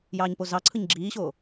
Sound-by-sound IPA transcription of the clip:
jɑːɲpozɑǀʰɯɲ ɡ͡ǁiːɕoː

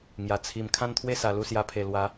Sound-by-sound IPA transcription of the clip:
ŋja˨˩ t͡sʰi˨˩m kʰã˥˧nt̪ʰwe˥˧sa˨˩ lu˥˧sja˧pʰe˨˩ lwa˨˦

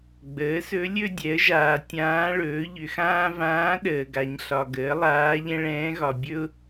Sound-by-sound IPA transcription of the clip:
ɡ͡bəː˩˥sɵ˧˥ lʲɵ˥dʲɛ˩˥ə̯ʒaː˨ tʲãː˧˥ɭɵː˩˥ ʎʏ˨xãː˥ vãː˧˥ ɗəː˨ɡa˨ɲ ɬɒ˨ɡəː˩˥ lˠaː˧˥ʎɛ̃˥ɭɛ̃ː˧˥ɣɒ˨ bʲɵ˥ʊ̯

